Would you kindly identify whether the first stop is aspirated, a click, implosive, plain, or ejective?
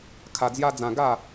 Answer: aspirated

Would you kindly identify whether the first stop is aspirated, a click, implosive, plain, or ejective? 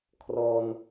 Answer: aspirated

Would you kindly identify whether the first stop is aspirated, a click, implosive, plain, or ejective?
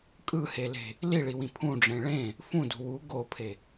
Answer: ejective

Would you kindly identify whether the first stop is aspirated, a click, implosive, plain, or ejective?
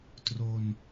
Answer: plain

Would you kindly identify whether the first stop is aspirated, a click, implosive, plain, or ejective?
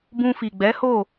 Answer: plain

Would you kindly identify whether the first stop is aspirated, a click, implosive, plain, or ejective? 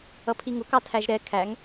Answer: aspirated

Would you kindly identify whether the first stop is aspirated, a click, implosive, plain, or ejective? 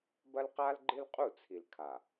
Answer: plain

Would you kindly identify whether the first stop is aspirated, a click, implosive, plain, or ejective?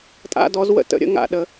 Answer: ejective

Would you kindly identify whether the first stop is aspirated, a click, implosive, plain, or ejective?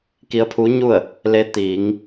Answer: plain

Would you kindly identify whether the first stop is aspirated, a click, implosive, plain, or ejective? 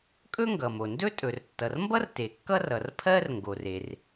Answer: ejective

